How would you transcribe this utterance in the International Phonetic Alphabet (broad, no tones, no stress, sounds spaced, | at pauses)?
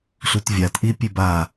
ɬ u t vʲ a t ʔ i pʲ e b a